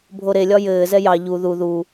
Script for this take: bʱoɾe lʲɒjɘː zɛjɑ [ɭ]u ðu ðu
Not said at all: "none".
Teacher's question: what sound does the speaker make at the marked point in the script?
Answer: ʎ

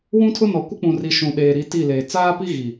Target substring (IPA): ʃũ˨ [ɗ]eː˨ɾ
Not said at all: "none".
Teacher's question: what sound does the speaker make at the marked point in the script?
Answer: ɗ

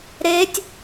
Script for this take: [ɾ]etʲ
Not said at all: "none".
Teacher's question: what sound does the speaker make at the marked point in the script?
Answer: ɾ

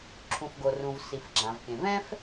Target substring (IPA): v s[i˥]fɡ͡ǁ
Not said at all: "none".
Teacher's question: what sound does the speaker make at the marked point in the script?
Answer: i˩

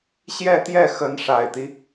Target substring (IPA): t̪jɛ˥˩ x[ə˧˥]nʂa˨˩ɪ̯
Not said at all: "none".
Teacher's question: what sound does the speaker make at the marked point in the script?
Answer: ə˧˥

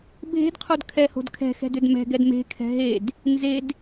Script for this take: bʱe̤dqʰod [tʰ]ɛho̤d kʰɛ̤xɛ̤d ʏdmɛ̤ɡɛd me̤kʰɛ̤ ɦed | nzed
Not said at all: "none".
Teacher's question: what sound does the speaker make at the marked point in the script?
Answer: kʰ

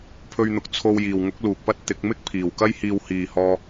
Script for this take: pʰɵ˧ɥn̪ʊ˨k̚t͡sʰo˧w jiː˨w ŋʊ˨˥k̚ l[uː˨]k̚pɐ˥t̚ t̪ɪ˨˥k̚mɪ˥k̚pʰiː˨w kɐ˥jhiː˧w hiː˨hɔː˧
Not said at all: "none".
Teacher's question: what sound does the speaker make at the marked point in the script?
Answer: uː˨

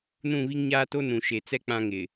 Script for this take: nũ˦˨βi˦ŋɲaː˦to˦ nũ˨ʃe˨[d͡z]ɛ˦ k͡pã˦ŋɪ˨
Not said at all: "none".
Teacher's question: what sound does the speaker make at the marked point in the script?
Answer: t͡s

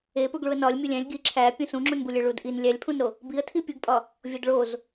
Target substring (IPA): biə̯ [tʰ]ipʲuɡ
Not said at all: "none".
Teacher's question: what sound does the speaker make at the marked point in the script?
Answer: tʰ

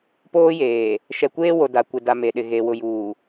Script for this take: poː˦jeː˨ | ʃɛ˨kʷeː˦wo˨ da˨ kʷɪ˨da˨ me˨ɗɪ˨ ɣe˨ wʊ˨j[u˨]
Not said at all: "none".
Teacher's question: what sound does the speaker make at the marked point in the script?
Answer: uː˨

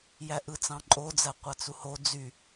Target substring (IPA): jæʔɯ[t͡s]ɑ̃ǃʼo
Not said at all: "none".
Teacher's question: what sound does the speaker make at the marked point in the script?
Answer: t͡s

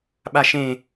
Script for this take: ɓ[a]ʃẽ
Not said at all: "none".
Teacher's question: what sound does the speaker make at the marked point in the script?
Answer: a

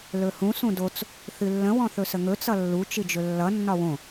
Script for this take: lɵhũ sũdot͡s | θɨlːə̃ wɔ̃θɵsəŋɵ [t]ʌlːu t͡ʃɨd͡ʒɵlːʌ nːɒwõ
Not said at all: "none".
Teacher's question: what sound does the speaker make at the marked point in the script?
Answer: t͡s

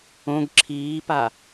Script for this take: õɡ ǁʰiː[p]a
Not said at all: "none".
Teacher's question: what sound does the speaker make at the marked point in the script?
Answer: p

